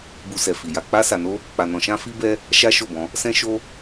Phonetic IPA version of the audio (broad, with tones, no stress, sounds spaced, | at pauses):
b u˧ s ɛ˨ f i˨ j a˧ k͡p a˦ s a˧ n o˦ | k͡p a˧ n ɔ̃˧ ʃ ã˦ f i˦ b ɛ˦ | ʃ a˦ ʃ o˦˨ b ɔ̃˧ | s ɛ̃˦ ʃ o˦